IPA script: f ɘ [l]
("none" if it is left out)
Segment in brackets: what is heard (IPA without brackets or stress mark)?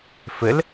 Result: l